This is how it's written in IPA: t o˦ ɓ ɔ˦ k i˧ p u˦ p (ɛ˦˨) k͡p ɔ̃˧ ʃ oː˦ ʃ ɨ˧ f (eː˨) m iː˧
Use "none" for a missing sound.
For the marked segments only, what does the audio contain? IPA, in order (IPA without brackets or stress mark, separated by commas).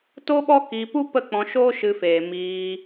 ə˦˨, eː˨